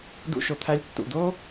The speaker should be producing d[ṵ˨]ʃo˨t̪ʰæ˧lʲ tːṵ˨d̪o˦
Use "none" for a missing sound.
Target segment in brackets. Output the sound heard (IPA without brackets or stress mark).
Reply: ṵ˧